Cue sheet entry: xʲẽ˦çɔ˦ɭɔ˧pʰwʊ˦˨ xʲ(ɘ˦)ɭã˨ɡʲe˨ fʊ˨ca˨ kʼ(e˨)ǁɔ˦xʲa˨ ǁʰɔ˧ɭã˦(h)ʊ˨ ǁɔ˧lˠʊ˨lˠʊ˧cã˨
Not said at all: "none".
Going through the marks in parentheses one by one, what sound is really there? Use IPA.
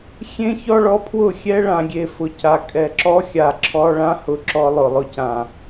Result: ɛ˦, ɛ˨, h

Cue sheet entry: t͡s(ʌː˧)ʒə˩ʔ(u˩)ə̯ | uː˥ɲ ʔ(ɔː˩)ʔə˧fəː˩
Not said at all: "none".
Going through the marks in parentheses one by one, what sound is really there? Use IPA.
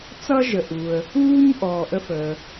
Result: ʌ˧, u˩, ɔː˩

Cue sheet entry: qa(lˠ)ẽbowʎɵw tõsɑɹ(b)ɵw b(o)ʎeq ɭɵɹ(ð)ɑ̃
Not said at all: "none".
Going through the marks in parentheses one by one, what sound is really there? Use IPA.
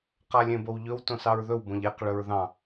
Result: lʲ, ð, õ, ð

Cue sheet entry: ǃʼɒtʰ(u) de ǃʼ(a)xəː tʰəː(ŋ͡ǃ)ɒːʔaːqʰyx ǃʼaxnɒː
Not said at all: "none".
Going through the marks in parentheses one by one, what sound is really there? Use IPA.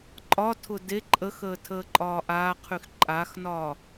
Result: ʊ, ə, ǃʼ

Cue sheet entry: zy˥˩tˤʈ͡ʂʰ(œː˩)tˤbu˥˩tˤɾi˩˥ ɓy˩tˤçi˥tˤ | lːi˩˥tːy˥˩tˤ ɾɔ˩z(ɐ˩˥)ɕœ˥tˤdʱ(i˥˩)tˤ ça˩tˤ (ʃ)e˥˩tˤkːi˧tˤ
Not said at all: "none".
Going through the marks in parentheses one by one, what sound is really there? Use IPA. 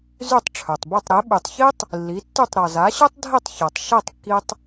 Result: œ˩, a˩˥, i˥˩, ʃ

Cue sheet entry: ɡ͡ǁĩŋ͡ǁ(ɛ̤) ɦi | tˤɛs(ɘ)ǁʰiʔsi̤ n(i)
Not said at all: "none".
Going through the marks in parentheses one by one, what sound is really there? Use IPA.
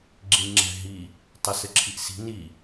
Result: ɛ̤, ɘ, i

